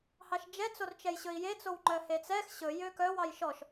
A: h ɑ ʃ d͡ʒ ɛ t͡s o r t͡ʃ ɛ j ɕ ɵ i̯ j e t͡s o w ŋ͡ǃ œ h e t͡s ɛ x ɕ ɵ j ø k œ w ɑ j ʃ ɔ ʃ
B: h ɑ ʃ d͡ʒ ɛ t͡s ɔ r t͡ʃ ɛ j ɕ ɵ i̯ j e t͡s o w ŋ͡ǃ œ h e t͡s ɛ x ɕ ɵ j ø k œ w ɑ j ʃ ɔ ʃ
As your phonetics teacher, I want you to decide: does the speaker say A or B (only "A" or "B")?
A